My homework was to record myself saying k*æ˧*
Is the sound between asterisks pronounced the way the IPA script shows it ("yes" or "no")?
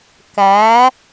no